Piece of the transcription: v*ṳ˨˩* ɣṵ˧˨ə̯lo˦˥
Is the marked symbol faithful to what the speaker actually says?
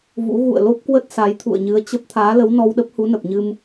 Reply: no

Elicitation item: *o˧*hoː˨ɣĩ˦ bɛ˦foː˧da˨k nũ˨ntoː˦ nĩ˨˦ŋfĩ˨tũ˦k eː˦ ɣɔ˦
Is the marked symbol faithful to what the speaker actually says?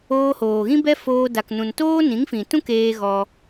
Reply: no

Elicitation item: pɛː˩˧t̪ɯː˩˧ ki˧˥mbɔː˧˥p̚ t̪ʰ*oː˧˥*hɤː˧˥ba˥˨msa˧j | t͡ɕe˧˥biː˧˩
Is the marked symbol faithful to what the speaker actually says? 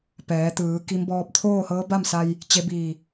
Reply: no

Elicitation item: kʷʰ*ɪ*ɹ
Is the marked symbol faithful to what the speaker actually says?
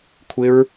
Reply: yes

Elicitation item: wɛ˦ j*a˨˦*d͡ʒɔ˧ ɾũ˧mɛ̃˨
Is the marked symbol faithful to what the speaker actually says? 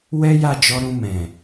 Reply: no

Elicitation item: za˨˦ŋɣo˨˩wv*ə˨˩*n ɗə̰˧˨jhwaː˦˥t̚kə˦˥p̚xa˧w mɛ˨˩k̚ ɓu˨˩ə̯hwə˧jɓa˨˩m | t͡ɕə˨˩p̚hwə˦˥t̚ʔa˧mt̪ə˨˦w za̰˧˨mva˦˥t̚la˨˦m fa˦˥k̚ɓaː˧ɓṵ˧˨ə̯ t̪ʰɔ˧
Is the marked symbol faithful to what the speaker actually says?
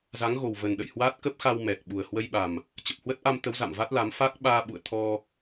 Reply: yes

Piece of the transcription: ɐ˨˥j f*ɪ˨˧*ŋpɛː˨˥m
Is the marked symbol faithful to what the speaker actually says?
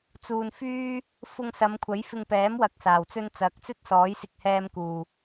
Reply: no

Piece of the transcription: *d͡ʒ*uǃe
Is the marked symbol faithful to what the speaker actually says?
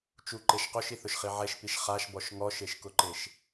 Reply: no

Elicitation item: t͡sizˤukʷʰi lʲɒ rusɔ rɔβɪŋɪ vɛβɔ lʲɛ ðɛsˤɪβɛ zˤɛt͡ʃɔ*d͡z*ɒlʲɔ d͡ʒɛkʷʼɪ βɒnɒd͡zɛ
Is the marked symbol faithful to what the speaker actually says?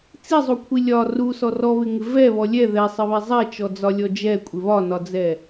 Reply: yes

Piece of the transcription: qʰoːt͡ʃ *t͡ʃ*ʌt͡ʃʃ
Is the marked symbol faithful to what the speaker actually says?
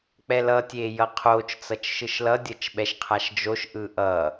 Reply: no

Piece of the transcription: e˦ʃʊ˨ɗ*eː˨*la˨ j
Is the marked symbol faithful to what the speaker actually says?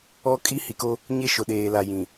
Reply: yes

